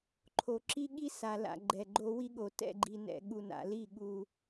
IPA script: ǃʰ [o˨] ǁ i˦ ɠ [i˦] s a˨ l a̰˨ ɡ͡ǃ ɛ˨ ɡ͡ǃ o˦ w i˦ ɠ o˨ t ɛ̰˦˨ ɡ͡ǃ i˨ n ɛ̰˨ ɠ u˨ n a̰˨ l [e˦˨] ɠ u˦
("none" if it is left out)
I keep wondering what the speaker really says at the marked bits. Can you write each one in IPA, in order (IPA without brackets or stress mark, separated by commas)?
o˨, i˦, i˦˨